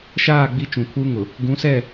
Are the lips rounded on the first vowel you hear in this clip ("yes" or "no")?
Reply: no